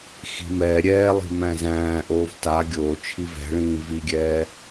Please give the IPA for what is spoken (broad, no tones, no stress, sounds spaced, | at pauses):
x i̤ m ɛː ɾʲ ɛː lˠ i̤ m æ̃ z æ̃ː ʔ oː v t a ɡʲ oː t͡ʃʰ i v ɛ̤ ɭ ĩː v i ɡʲ ɛː